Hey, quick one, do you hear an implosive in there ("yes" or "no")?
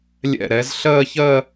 no